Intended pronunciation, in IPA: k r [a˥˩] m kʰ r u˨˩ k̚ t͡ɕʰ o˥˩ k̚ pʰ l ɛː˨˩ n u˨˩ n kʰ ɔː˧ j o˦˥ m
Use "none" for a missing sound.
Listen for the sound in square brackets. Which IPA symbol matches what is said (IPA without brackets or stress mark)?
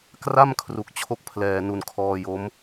a˥˩